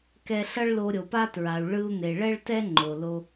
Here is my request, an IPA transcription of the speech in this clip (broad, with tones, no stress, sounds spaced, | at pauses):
k ɛ˧ ɬ ʌ˥ ɭ l o˧ ɾʲ o˩ p a˥ t ɹ a˩ u̯ ɭ ɯ˧ u̯ n̪ e˩ ɭ ɛ˥ ɭ t ɛ˥ ŋ͡ǃ o˩ l o˧